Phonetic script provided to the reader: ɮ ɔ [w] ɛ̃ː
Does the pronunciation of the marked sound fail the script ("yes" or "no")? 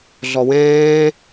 no